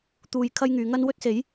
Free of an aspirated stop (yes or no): no